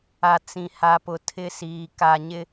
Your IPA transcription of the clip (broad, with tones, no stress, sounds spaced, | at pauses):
a˨ t͡s ĩ˨ h a˨ p ʊ˨ tʰ ɪ˦ s iː˨ k a˨ ɲ ɪ˦